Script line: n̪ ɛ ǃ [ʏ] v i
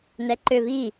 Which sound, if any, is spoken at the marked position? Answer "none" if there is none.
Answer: ʏ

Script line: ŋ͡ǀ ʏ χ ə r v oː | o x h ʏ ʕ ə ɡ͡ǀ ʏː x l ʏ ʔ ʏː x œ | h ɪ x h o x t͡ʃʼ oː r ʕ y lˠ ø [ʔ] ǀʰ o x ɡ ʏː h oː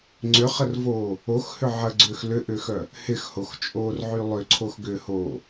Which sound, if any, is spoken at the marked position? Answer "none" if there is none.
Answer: none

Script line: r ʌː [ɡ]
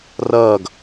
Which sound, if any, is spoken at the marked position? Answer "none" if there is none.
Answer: ɡ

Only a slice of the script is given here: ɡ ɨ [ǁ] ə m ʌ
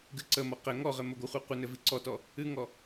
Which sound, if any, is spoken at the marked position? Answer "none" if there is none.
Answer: ǀ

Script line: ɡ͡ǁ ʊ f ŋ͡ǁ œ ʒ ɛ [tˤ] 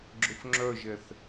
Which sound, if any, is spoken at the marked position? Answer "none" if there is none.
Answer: θ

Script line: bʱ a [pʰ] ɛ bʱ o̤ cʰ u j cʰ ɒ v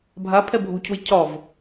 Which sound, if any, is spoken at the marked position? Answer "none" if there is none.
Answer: pʰ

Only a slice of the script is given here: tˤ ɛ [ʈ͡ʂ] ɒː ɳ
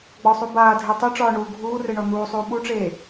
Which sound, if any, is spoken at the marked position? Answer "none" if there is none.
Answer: ʈ͡ʂ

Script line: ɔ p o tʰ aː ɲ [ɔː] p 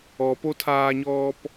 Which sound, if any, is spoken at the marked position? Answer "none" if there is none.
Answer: ɔː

